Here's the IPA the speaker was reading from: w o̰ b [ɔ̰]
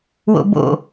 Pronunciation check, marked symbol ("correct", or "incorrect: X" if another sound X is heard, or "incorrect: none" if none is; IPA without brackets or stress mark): incorrect: o̰